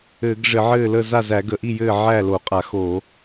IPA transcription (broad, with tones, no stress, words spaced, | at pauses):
ɘː˧˩˧ɡ ʐɘ˧˩˧ʕɘː˥˩lə˥˩ za˥˩zæ˧˩˧ɡə˧˩˧ʔi˥˩ jɘː˥˩ ʕæː˥˩lo˧˩˧qʼa˧˩˧xo˧˩˧